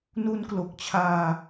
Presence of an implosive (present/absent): absent